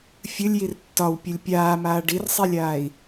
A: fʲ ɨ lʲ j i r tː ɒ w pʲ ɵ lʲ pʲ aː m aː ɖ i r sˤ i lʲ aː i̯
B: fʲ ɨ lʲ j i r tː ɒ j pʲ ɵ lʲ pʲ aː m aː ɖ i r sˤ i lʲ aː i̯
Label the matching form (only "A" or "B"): A